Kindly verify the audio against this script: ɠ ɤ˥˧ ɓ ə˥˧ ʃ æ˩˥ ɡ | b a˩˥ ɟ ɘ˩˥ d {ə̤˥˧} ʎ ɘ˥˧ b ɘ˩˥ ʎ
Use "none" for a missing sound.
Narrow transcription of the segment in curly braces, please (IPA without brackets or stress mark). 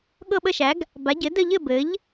ə˥˧